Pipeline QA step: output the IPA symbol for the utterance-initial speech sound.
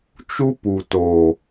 t͡ʃ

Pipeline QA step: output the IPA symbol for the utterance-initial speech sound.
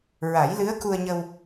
ɹ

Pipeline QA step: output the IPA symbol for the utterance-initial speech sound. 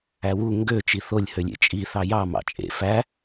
æ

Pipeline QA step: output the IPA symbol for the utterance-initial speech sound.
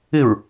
ɪ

